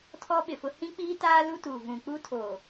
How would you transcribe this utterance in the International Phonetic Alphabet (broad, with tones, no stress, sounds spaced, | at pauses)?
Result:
tʰ ɔ˦ ɓ ɪ˨ f ʊ˦ h ĩ˦ k͡p iː˦ t aː˦ l u˦ t u˨ v ũ˨ k͡p u˦ tʰ oː˨